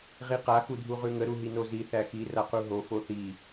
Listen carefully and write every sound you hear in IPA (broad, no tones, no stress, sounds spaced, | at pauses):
ʁ i q a x u dʱ u ʁ ʉ ŋ ə ɾ u ɦ i n o z i θ æ x i r a q u ɦ o f o θ i